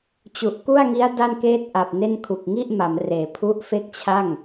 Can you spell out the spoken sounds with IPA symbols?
t͡ɕ u˨˩ ʔ k u˥˩ a̯ ŋ i˦˥ a̯ d a˥˩ n k eː˥˩ t̚ ʔ a˨˩ p̚ n e˥˩ n kʰ u˨˩ k̚ ŋ i˥˩ ʔ m a˩˦ m r eː˩˦ pʰ u˦˥ ʔ f e˥˩ k̚ t͡ɕʰ a˥˩ ŋ

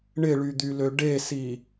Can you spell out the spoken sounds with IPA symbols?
ɳ ɪ ɭ y d̪ y l ø ɖ e s i

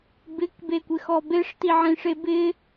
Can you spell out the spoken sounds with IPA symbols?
b ɪ k b e kʷ ɪ x ɔ b e ʂ t i ʕ ĩ ʂ e b ɪ

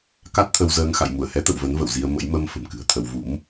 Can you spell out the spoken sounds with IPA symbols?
k a˦˥ t̚ t̪ʰ ə˧ w z əː˧ ŋ x a̰˧˨ j m u˧˩ ə̯ h ɛ˨˦ t̪ ə̰˧˨ w v ə˨˦ n v ə̰˧˨ w z i˧ ə̯ m ə̰˧˥ j m ə˧ m f ə̤˨˩ m k ɨ̤˨˩ ə̯ t̪ʰ ə˧ w v ṵ˧˥ m

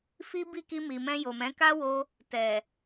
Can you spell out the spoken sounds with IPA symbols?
f i˦ b i˦˨ k i˧ m i˨ m ɛ̃˧ j o˨ m ɛ̃˨˦ k a˦ w o˧ | t ɛ˨

